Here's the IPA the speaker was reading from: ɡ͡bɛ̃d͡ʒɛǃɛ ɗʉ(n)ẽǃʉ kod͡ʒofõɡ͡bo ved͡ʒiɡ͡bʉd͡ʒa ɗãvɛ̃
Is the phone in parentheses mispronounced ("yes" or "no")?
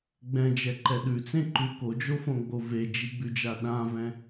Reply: yes